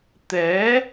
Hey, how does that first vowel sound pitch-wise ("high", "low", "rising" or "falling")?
rising